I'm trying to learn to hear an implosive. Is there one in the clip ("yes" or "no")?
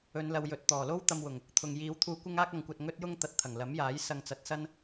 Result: no